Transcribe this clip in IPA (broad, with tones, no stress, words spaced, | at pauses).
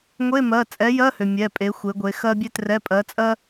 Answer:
ŋʷe˧˥˧mɜ˩˧˩ t͡sʼɛ˨˥jɜ˧˥˧hø˩ mʲɛ˩˧˩pʼe˩˧ xʷe˩˧ɡʷe˩˧ xɜ˥bʲe˥trɛ˧˥˧ pʼɜ˨˥t͡sʼɜ˥